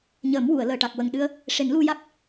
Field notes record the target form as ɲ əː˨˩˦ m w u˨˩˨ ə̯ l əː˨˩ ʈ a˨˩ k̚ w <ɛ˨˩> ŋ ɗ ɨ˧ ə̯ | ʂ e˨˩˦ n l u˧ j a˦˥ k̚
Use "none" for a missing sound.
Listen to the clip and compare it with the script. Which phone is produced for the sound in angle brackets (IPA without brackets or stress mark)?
ə˨˩